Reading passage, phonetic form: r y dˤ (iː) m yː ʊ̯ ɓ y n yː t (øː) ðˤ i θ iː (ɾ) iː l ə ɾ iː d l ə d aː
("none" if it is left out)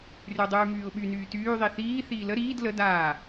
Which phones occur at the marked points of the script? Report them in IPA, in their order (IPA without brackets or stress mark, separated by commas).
yː, yː, θ